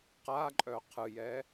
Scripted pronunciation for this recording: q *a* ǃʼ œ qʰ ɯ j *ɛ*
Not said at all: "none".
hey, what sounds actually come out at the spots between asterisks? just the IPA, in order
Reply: a, ɛ

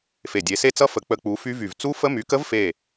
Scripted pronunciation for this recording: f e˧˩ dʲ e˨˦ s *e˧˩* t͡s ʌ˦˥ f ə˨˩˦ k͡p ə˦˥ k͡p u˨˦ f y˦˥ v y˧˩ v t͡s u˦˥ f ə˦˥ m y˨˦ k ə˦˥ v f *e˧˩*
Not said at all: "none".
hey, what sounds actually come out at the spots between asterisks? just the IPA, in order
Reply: e˦˥, e˧˩

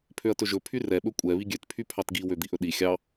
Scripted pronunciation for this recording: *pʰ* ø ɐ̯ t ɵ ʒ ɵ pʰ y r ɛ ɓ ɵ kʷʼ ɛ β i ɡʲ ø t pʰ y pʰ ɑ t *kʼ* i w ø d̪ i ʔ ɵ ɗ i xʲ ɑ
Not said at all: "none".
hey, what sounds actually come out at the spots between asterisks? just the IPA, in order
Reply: pʰ, ɡ

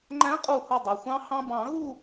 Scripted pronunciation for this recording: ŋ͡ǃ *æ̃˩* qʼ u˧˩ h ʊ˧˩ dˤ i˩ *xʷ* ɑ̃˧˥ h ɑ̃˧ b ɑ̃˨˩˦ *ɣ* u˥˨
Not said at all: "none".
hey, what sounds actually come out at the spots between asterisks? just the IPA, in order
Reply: æ̃˧˥, xʷ, ɣ

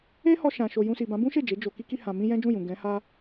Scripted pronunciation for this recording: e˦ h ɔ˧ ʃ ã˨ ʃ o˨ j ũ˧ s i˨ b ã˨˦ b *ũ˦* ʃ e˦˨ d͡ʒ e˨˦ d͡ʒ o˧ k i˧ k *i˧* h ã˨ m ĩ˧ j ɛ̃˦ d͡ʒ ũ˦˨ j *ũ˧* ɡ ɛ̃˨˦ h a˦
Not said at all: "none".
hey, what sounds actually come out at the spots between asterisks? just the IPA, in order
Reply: ũ˦, i˧, ũ˨

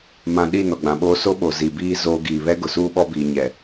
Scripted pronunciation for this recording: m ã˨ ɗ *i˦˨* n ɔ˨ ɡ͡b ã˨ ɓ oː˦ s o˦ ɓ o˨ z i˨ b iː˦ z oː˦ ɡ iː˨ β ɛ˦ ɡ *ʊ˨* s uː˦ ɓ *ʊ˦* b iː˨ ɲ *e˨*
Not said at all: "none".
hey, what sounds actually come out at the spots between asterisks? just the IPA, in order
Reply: i˦˨, ʊ˨, ɔ˦, ɛ˨

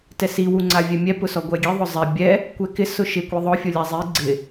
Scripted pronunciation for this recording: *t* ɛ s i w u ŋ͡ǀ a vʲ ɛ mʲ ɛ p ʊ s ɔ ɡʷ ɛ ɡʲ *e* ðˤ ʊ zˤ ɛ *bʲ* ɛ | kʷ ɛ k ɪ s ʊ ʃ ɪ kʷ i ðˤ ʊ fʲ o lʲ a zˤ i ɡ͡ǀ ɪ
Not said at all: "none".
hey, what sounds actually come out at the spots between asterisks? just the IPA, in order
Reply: t, e, bʲ

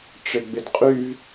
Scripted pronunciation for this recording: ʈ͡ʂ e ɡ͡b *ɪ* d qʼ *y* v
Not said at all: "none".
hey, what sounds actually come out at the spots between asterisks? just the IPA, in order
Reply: ɪ, y

